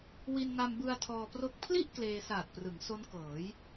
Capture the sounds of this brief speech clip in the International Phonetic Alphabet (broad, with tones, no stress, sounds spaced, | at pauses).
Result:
w i˧ n ŋ a˧ m b ɯ˧ a̯ tʰ ɔː˧ p r o˥˩ k̚ pʰ l i˥˩ ʔ k l eː˧ s aː˨˩ t̚ p r ɯ˩˦ ŋ s o˦˥ n k ɤː˩˦ j